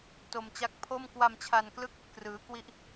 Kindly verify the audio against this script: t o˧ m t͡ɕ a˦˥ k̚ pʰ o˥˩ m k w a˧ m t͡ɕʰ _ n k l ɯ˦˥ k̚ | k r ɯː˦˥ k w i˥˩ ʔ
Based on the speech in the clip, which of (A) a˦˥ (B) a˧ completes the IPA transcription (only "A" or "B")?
B